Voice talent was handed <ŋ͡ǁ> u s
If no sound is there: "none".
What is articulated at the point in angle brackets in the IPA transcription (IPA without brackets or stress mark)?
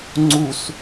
ŋ͡ǀ